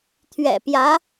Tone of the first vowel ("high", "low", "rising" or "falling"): low